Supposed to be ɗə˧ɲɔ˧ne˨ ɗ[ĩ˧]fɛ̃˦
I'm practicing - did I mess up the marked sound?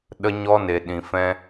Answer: no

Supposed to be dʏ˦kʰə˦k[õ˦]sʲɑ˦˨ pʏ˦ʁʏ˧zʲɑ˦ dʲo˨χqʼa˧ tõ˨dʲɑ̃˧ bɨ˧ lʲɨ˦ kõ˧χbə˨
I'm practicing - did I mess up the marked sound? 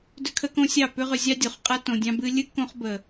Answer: no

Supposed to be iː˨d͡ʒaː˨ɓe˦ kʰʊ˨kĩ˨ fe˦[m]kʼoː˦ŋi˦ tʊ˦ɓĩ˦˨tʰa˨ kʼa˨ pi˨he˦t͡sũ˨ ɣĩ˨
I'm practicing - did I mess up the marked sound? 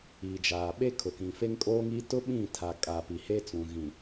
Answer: yes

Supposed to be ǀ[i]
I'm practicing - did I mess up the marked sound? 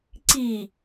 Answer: no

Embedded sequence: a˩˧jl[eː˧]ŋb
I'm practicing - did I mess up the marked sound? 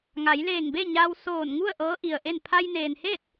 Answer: yes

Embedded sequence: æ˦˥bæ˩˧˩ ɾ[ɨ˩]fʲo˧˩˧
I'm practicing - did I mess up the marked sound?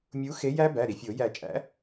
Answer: yes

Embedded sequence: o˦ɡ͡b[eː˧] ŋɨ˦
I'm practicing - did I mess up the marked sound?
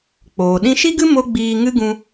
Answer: yes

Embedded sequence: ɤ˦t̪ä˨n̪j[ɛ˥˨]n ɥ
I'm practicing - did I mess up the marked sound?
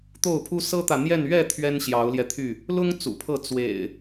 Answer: no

